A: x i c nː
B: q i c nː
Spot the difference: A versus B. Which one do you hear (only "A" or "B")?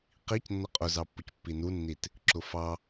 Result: B